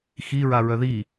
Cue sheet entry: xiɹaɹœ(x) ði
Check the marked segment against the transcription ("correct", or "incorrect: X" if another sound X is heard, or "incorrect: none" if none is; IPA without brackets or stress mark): incorrect: none